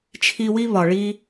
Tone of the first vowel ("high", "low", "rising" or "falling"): high